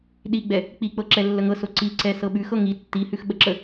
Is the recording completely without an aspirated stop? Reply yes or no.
yes